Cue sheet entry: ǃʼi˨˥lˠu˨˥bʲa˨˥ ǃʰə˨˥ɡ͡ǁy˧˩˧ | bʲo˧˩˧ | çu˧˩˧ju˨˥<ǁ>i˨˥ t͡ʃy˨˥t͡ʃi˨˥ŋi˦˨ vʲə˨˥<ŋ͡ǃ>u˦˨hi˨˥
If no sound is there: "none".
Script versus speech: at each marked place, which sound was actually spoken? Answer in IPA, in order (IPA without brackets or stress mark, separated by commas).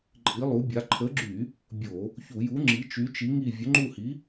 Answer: ŋ͡ǁ, ŋ͡ǃ